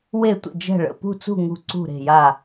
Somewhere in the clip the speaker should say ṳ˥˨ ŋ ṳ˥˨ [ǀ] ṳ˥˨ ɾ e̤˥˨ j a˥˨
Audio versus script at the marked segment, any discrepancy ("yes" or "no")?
no